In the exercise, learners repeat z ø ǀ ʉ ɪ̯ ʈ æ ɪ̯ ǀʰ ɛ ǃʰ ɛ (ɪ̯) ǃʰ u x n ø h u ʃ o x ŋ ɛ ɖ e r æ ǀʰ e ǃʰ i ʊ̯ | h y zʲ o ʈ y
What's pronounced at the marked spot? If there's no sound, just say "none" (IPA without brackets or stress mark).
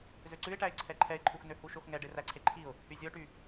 ɪ̯